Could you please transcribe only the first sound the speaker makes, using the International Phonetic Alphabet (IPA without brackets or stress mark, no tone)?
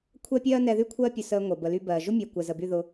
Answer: kʷʰ